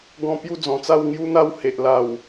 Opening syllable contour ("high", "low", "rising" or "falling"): falling